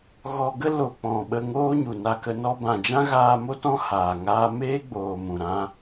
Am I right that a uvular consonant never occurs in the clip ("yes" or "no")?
yes